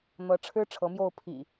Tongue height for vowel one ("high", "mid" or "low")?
mid